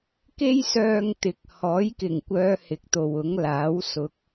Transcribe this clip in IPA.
k e˥ j s œː˧ ŋ t̪ ɪ˨ k̚ h ɔː˨˥ j k ɪ˨˩ ŋ kʷ œː˨˧ h ɪ˨ k̚ t̪ o˨ w ʊ˨˥ ŋ l aː˨˥ w s ʊ˨ k̚

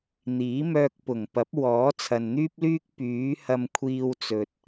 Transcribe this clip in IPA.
n̪ iː˨˥ m œː˧ k̚ p ʊ˨˩ ŋ p ɐ˨˥ p̚ w ɔː˨˥ t͡sʰ ɐ˨ n n̪ yː˥ p̚ l yː˥ k̚ p yː˨˥ h ɐ˧ m kʷʰ iː˧ w t͡s ɵ˨ t̚

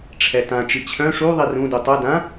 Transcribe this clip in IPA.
ʈ͡ʂʰ ɛ t ã t͡ʃ i t͡ɕʰ œ̃ ʂ u ðˤ i r ũ d u tˤ œ d ã

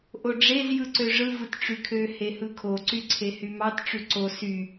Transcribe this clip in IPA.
ʔ o ɖ͡ʐ e z j ɯ ǀ ø ʐ ɯ v ɯ t ʈ͡ʂ y kʰ ø h e h ɯ kʰ o ǀ y ǀʰ e h y m ɑ t ʈ͡ʂ y ǀ o s y

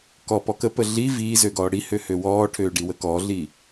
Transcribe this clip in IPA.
k ɔ p ɔ k ə p ə ɮ i v iː z ø ɡ ɔː ɽ i h ø h ø w ɔː ʈʰ øː ɖ i w ə k ɔ ɮ i

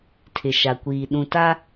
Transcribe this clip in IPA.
tʰ ɪ˨ ʃ a˨ kʷ iː˨ ɗ ũ˨ t a˦

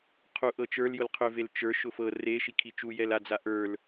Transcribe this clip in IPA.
qʰ u ʔ ɤ t͡ʃ ə˞ l j ʊ l qʰ ʏ v e l t͡ʃ ə˞ ʃ ʊ f ɤ r e ʃ i kʰ i t͡ʃ u j ɛ l a d͡z a ʔ ə˞ l

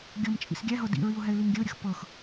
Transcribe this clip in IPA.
ɡʲ ɤ m t͡ʃʼ ḭ s ɡʲ æ ɦ ɤ d ḭ ɹ i ʊ̯ ɦ ɛ ɪ̯ l i ŋ ɡʲ ə ʊ̯ ɾʲ ə x p ɤ x

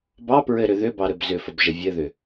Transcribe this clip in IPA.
b ɑ p ɹ ɘ ɾ ʏ ð ʏ b ɑ ɾ ɘ b z ʏ f ə b ʒ ə vʲ ɘ ð ʏ

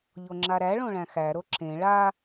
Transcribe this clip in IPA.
ʎ o ŋ͡ǁ a ɾ æ ɭ õ ɭ æ̃ x æ ɾ o ǁ ẽ ɭ a

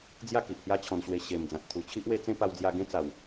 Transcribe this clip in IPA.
d͡z j a˥˧ k i˨ ʔ h j a˦ t͡ɕʰ ɔ̃˧ n ɕ w e˧ ɕ e˨˩ m d͡z ã˨ t̚ t̪ʰ u˨˩ t͡ɕʰ i˦ ʔ w e˦ t͡s ẽ˦ p a˧ w d͡z j a˧ ɡ ẽ˦ t͡s a˨˩ w

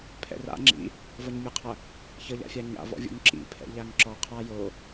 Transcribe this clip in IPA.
pʰ ɛ̰ r a̰ ŋ͡ǁ ḭ | v ʌ ɲ mʲ ə qʰ ɐ | ç ʌ ʎ a̰ fʲ a ɲ a̰ v ɔ̰ vʲ o̰ ŋ ǁ ḭ pʰ ɛ̰ ʎ a ŋ ǁ ɔ qʰ a j o

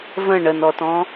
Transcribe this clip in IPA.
v ə̃ ɳ ə n ɔ t ɔ̃

